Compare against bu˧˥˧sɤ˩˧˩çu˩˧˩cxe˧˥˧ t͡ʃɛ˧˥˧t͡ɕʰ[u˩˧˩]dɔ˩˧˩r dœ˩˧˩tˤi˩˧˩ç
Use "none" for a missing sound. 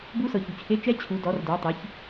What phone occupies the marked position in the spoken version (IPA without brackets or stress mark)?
u˩˧˩